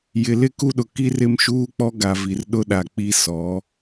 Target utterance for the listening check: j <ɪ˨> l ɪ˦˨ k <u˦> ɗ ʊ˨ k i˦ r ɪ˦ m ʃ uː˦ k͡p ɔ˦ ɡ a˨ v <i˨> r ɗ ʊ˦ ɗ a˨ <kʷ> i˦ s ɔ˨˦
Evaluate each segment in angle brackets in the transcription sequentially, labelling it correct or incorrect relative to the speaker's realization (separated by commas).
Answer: correct, correct, correct, incorrect